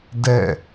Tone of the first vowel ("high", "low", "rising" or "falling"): falling